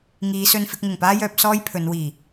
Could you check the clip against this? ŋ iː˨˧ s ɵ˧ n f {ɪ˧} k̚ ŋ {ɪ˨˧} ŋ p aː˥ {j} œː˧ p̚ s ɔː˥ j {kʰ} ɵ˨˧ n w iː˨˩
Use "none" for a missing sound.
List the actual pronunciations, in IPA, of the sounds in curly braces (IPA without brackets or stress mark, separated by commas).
ɪ˧, ɪ˨˩, j, pʰ